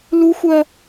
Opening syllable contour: high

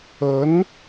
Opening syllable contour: rising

